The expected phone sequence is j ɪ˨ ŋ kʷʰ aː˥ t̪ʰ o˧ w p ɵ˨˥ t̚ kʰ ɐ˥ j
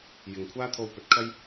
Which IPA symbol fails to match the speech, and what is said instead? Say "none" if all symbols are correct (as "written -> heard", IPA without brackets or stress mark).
none